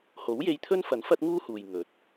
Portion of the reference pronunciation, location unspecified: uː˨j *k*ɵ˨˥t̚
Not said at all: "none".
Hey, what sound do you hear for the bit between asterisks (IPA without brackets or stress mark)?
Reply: ŋ